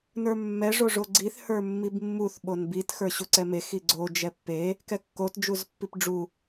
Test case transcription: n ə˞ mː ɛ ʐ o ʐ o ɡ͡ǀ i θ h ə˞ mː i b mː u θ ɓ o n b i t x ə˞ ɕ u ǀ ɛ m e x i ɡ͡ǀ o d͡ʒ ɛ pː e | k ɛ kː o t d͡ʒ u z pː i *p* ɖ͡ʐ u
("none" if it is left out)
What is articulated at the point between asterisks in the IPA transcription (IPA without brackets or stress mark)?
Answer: p